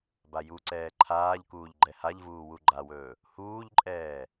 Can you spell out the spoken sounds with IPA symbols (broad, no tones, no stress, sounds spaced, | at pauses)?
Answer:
b a j u ǀ ɛː ǃʰ aː ʎ k uː ʎ ɡ͡ǃ ɛ h a ʎ v uː w u ɡ͡ǃ a w ɵː | h uː ʎ ǃʼ ɛː